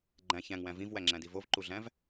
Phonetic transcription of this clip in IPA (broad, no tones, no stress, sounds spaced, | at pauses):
ɡ͡ǃ æ̃ ç æ̃ ŋ w æ̃ v ĩ v w æ ŋ͡ǁ æ̃ d i v o v ǃ u ɮ æ̃ v